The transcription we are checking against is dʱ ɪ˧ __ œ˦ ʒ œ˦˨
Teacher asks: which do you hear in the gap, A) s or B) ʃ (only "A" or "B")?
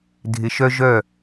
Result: B